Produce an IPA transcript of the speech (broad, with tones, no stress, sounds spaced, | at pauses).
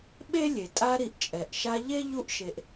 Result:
ɓ e˥ lʲ e˩ tʼ a˦ ɾ i˨ ʔ t͡ʃʼ ɛ˩ ʔ ʃ a˦ ʎ e˥ ʎ u˥ ʔ ʃ e˨ ʔ